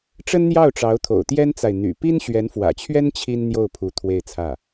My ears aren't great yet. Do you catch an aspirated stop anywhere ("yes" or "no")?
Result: yes